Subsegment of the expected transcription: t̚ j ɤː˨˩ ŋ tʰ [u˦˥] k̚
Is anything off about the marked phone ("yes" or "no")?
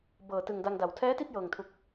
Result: yes